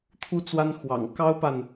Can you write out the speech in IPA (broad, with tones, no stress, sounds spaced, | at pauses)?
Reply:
t̪ʰ u˥ t͡s w a˥ n x w ɑ̰˨˩ ŋ k ɑ˥ ʊ̯ p a˨ n